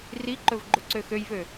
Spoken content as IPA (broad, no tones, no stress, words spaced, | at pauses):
riǃɵv ɡ͡ǃɵǀøxøjvø